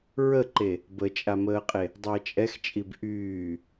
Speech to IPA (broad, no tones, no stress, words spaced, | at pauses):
ɹəǃe | bət͡ʃʼaməːqʼe | dˤəːt͡ʃʼɛxt͡ʃʼib ʔyː